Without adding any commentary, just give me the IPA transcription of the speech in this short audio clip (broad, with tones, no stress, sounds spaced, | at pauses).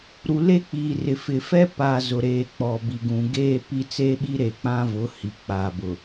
ɾ u˨ l e˦ k͡p iː˨ r ɪ˨ f ɪ˨ f ɛ˦ p a˨ z ʊ˨ ɾ eː˨ k͡p ɔ˨ b i˨ ɡ ũ˨ ɡ eː˦ p i˦ t͡s e˦ ɓ i˦ ɾ e˨ k͡p ã˦ v ʊ˨˦ h i˨ k͡p aː˨ b ʊ˨